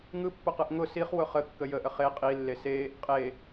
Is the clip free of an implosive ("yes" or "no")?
yes